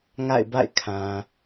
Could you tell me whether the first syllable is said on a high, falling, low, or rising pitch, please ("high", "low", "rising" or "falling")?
falling